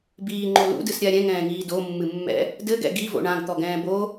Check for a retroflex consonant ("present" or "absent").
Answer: present